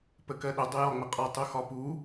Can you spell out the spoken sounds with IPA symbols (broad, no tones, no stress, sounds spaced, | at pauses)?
p ə k ɜ ɗ ʊ dˤ ʊ j ɒ ŋ͡m ə qʼ ɒ tˤ u x ɒ p u